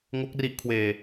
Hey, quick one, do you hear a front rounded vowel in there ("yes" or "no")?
no